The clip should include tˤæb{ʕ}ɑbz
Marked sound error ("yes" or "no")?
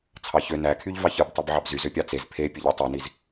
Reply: no